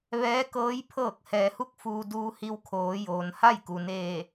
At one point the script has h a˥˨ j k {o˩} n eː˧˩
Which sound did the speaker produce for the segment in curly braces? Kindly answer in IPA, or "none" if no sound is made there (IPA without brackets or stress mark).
u˩